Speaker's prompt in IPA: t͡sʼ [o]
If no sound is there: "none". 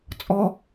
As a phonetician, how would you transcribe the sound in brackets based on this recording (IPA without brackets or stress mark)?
ɔ